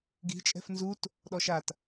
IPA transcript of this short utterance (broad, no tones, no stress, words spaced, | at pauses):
ɡi̤ t͡ʃʼɛ̤fnzut | ɗɔʃat